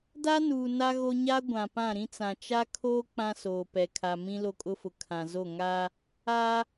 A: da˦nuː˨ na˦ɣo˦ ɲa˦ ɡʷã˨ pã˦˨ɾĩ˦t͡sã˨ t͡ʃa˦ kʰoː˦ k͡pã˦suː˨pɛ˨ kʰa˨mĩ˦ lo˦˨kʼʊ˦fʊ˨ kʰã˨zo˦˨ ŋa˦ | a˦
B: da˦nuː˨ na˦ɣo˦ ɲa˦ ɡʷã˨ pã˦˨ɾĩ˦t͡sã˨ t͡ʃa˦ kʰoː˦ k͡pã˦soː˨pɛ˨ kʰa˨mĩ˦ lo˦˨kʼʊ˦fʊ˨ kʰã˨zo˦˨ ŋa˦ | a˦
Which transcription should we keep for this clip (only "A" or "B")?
B